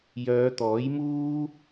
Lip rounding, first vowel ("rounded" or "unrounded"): rounded